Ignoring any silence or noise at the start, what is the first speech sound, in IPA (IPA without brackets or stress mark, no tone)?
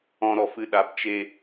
ɔ̃